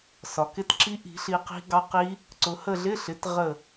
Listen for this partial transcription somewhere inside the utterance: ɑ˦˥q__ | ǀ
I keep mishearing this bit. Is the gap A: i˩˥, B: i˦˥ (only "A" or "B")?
B